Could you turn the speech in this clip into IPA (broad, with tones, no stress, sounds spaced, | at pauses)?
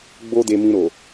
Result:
ɡ͡b o˦ d e˧ m ĩ˧ ɾ o˨